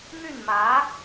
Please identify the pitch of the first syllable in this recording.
falling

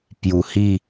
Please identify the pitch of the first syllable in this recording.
low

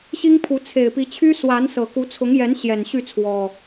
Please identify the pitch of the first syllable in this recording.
high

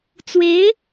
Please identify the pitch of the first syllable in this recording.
rising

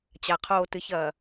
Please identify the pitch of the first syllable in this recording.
low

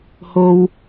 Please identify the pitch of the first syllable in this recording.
high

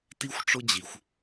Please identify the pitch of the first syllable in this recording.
high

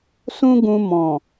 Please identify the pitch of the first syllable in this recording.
high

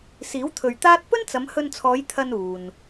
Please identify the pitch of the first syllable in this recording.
rising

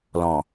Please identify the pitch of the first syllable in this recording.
low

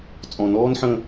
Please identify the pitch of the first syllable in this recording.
low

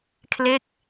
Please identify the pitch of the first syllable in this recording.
falling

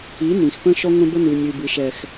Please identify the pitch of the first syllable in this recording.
rising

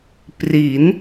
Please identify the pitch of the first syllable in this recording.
rising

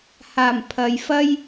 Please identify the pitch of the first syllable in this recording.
low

